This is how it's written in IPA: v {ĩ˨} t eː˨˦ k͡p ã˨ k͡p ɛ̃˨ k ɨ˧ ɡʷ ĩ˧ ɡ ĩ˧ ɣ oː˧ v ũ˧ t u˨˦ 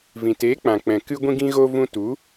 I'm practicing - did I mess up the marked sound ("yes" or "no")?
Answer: no